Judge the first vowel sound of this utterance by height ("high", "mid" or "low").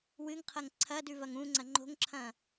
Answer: high